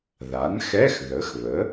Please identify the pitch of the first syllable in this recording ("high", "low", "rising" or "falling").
rising